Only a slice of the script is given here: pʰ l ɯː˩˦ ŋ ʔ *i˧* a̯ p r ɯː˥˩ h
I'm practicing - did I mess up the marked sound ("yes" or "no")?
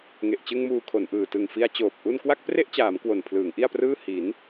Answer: yes